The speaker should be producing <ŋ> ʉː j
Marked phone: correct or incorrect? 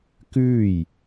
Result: incorrect